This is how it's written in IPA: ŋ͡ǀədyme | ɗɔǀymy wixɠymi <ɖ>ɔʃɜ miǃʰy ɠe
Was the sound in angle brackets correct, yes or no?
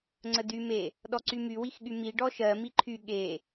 yes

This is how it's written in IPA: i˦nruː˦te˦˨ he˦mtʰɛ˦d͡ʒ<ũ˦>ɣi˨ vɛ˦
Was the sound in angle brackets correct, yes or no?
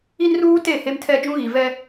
yes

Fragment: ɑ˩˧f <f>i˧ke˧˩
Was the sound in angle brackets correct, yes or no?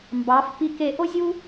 no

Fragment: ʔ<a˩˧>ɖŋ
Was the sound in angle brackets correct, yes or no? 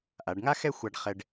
yes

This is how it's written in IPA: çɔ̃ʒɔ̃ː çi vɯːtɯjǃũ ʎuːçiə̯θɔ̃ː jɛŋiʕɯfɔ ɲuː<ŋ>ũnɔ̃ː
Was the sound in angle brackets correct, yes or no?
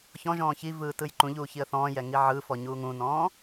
yes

